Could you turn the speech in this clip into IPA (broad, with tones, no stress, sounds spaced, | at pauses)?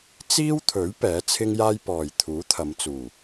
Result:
t͡s iː˥ w t̪ʰ ɵ˨˥ ɥ p ɛː˨˥ t͡sʰ ɪ˥ ŋ j aː˥ j p ɔː˨ j t̪ʰ uː˨˥ t̪ʰ ɐ˨˧ m t͡s uː˨˩